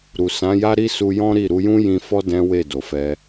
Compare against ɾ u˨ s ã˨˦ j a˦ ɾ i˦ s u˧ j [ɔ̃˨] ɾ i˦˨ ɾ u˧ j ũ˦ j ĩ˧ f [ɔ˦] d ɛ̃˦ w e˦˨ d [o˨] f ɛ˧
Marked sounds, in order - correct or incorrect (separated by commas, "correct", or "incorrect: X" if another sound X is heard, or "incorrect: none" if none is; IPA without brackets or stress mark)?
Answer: incorrect: ɔ̃˦, correct, correct